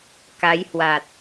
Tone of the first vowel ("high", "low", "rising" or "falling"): rising